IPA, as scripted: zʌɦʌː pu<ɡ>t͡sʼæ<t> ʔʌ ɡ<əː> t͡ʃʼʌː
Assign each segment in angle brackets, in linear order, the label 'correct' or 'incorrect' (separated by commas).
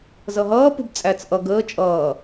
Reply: incorrect, incorrect, correct